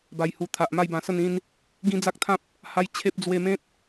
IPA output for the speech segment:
b a˨˩ j h u˨˩ t̪ʰ a˨ ʔ m a˥˧ j b ã˧ s ə˥˧ n ĩ˧ n | ɡ ĩ˦ d͡z a˦ k̚ t̪ʰ ã˦ p̚ | h a˦ j t͡ɕʰ e˦ p̚ d͡z w e˧ m ẽ˦ t̚

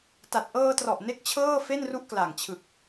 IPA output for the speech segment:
t a˨˩ t̚ ʔ ɤː˧ t r ɔ˨˩ ʔ n e˥˩ k̚ t͡ɕʰ ɤː˥˩ f e˥˩ n r u˦˥ ʔ k l a˨˩ ŋ t͡ɕʰ ɯ˨˩ k̚

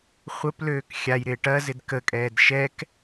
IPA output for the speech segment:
χʷ ə p l øː k xʲ a j ɾ ɪː ʈ ɐ z ɪ d k ə kʼ ɛː d ʃ ɛ k

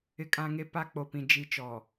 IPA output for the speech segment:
ɪ˨ kʼ ã˨ ŋ e˨ p a˨ k͡p o˨ p ĩ˨ d͡ʒ i˨ t͡ʃ ɔ˨

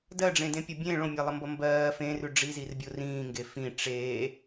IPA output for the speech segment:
d ɜ ɖ͡ʐ ẽ d ẽ pʲ ʌ bʲ ẽ ɭ õ mʲ ɜ lˠ ʌ m b ʌ m b ɜː f ẽ r ʉ ɖ͡ʐ i z i r bʲ o r ĩː ŋ ɡ e f ĩ ʈ͡ʂ eː

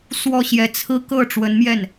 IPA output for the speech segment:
s w ɔ˥˩ ɕ j ɛ˧˥ t͡sʰ ɹ̩˥ k ɤ˥˩ ʈ͡ʂ w ə˧˥ n m j ɛ˥˩ n

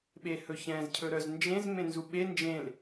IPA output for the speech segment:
ɓ e h ɵ ç ɛ̃ z cʰ ɵ ɾ œ z n d͡ʒ ẽ z m ẽ n z u ɓ e n d͡ʒ ẽ l

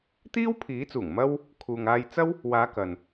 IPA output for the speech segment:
t̪ iː˥ w pʰ iː˨˥ t͡s uː˨˩ ŋ m ɐ˥ w | kʰ uː˨ ŋ aː˧ j t͡s ɐ˥ w | w aː˨˧ k ɐ˨ n

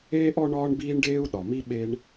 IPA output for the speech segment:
eː˥ ʔ ɔ˥ ɳ ɒː˥ ɳ b iː˥ ɳ ɖ eː˥ u̯ ɗ ɒ˩ m i˥ ɓ e˥ ɳ

